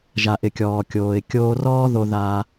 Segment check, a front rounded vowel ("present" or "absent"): absent